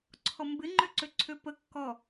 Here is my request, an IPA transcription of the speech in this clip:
ǀʰ ɔ m b ɪ ŋ͡ǃ ø ǀ ø ǀʰ ø p ə kː ɔ

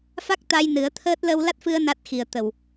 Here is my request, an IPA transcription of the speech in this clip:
f a˦˥ k̚ t̪ a˧ j n ɨ˨˩˦ ə̯ t̪ʰ əː˦˥ t̚ l ə˧ w l a˦˥ t̚ f ɨ˧ ə̯ n a˦˥ t̚ x i˨˩ ə̯ t̪ ə˨˩ w

